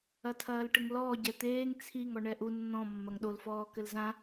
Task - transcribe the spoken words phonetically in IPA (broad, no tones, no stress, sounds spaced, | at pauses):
ɐ tʰ ɐː l ʈ ɘ ŋ l ɔː ɟ ɛ t̪ eː ŋ t͡sʰ i ŋ ɔ ɳ ɛ ʔ u nː ɔ̃ mː ɐ ŋ ɗ o l f ɔː k ɘ l z ã